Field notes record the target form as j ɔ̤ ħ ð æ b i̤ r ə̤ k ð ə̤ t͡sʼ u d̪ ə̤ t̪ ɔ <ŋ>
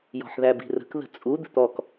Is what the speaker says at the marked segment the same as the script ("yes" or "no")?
no